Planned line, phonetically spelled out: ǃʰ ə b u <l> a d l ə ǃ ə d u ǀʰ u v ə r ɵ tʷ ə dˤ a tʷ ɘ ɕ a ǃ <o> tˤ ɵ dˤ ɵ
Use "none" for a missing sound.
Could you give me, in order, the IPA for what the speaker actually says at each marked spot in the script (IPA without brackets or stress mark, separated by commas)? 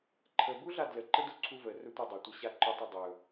ɮ, ɵ